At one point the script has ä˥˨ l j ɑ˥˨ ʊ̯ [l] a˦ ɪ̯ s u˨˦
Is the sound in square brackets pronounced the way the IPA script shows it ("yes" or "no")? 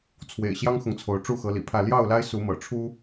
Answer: yes